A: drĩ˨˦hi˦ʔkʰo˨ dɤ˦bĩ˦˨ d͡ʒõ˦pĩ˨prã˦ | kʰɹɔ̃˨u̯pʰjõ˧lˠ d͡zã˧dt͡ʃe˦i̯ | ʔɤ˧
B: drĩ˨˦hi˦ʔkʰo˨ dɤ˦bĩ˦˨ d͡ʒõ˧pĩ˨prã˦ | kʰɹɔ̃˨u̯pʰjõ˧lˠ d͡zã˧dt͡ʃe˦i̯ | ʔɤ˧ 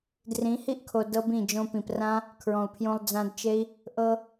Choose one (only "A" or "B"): B